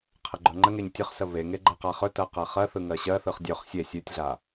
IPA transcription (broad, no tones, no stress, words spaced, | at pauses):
qʰəɡ͡ǃɵŋ͡ǃəŋeɲ tʲɵχsə βeŋe ɡ͡ǃɜqaχɵtɜ qɜχɜθɯ ŋɜɕɜθɯχ dʲɵχ sʲe sʲʉtʲɮa